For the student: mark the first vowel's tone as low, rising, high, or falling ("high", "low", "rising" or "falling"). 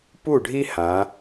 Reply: falling